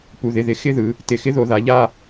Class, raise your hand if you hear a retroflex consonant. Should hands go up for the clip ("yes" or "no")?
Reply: no